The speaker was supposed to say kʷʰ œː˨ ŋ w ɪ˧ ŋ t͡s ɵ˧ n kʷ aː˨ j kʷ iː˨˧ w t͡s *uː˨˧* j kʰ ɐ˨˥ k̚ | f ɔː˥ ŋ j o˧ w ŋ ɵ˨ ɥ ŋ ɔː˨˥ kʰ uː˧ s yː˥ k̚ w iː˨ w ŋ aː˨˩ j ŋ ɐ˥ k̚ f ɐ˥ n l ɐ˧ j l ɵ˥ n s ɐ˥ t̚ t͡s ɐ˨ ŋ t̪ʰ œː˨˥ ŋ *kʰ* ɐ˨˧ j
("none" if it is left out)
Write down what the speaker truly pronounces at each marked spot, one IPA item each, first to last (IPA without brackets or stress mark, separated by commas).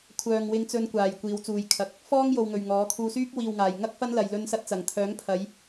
uː˨, pʰ